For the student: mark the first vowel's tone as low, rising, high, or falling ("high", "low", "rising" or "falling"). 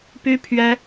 high